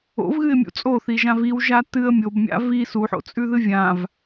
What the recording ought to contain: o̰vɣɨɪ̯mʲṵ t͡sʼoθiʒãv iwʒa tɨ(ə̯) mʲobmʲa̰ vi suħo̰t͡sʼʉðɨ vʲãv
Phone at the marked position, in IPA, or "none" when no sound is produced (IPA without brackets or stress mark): ə̯